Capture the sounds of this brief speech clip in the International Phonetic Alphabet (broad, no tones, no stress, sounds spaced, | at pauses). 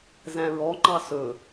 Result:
z æ̃ ɹ ɔ ŋ͡ǃ ɑ s ɵ